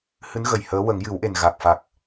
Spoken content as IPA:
h ɨ˧˥ n ɣ ə˨˩ j h əː˧˥ w ə˨˩˦ ŋ j ɨ˨˩˦ w ʔ e˨˩ n ɣ a˨˩ k̚ f a˨˩ k̚

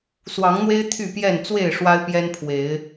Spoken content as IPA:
s w ɑ˨˦ ŋ n̪ w e˦ ɪ̯ t̪ʰ y˥˨ p j ɛ˥˨ n t͡s w e˥˨ ɪ̯ ʂ w a˦ ɪ̯ p j ɛ˦ n pʰ w e˨˦ ɪ̯

